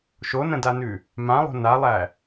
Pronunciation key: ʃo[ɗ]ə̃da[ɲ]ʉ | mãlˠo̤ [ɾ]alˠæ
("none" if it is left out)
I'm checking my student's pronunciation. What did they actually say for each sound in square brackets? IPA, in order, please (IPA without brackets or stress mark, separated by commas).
n, n, n